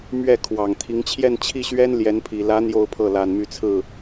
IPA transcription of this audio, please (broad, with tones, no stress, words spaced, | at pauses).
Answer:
mɥɛ˥˩kʰwɑ˨˩ŋt̪ʰi˧˥ŋ t͡ɕʰjɛ˥˧nt͡ɕʰi˥˩ɕɥɛ˥n ljɛ˧˥npʰi˨˩ lä˧˥ n̪jo˥˧ʊ̯pʰɤ˥˩ la˨˩nmy˧˥t͡sʰɹ̩˥˩